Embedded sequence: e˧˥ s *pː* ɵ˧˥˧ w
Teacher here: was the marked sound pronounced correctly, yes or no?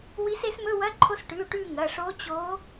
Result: no